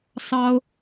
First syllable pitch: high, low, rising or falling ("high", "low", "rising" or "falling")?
high